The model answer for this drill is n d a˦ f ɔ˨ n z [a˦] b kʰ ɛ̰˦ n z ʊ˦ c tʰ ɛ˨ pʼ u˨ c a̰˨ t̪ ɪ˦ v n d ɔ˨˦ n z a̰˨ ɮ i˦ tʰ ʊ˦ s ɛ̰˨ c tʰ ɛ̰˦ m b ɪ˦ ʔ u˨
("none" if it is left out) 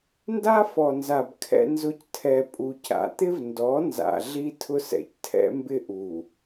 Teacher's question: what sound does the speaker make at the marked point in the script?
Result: a˨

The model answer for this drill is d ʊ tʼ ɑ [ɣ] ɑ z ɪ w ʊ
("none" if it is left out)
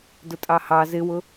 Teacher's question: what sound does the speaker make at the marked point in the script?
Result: h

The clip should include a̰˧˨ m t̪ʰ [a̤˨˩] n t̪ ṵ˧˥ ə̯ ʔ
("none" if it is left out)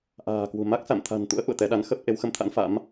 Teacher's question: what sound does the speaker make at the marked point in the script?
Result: a̤˨˩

